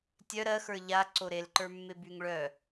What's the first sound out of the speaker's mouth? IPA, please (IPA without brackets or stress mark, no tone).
tʲ